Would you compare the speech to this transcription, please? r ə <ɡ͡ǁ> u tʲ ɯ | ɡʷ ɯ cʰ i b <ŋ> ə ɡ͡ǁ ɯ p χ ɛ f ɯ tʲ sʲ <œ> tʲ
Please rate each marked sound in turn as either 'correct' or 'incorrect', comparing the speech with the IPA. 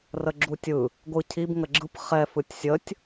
correct, correct, incorrect

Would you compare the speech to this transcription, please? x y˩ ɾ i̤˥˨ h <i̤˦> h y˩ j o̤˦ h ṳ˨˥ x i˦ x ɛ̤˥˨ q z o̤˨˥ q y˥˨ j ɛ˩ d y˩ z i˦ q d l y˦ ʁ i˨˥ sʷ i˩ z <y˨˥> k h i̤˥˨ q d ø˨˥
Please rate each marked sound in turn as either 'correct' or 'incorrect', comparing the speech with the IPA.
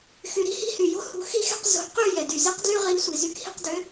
correct, correct

